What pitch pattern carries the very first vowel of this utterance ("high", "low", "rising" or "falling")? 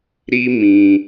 high